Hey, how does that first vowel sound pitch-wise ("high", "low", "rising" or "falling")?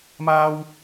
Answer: high